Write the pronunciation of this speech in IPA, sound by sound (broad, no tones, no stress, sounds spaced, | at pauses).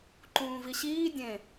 ǃ ũː v i ɕ iː dʲ ẽ